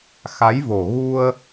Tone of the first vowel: rising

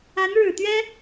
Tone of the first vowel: rising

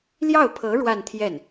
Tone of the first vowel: falling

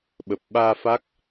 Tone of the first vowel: low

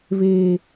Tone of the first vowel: low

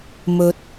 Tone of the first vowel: low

